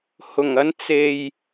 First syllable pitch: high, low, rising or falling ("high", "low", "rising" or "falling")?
low